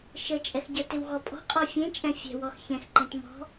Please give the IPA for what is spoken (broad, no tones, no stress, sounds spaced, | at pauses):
ʃ ə t͡ʃʼ ɛ x ɟ ə t ɪ w ɣ ɔ pʼ ɔ̤ qʼ ɔ fʲ ẽ t͡ʃʼ ɛ̃ fʲ ɛ̤ w ɔ x ç ɛ̃ x ǃ ẽ t m ɔ̤